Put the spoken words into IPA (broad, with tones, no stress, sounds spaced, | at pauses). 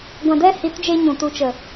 ɡʷ ã˨ d ɛ˧ h i˨˦ t d͡ʒ e˧ ɲ ũ˨ t u˨ t͡ʃ ə˨